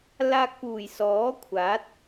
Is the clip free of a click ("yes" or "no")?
yes